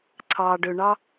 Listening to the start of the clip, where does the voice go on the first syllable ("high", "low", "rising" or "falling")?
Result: low